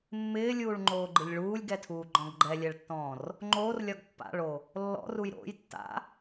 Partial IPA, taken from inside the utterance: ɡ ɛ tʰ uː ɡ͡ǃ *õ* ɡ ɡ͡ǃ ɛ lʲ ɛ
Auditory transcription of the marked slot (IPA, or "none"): ɔ̃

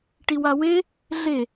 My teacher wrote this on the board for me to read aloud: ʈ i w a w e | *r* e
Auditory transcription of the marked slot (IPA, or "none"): ɮ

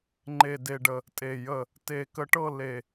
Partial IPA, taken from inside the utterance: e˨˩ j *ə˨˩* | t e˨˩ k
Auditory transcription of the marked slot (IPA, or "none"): ə˨˩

